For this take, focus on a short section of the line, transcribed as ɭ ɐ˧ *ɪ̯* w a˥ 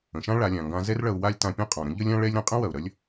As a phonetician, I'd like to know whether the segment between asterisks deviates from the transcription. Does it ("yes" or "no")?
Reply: yes